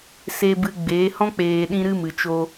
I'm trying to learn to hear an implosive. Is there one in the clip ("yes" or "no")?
yes